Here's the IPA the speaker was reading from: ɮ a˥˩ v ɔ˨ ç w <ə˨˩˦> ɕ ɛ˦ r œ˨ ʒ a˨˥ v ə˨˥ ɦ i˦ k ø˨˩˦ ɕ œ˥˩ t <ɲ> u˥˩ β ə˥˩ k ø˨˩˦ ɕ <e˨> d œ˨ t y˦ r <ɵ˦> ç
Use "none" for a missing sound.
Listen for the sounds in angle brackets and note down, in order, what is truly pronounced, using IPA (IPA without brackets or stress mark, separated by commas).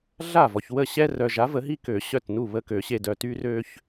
ə˥˩, n, e˨, ø˦